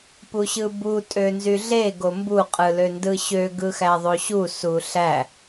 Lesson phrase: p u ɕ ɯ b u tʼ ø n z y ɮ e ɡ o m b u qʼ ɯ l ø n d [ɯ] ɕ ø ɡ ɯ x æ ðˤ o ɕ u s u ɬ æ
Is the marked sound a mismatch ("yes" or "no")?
no